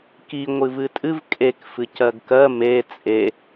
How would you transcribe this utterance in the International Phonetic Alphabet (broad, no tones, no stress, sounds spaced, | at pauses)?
k i ŋʷ ɨ v ɨ tʼ ɨ v kʼ e k f ɨ c ɜ ɡ k ɜ m e t͡sʼ e